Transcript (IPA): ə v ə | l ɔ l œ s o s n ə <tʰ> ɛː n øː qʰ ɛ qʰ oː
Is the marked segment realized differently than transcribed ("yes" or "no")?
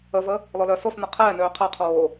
yes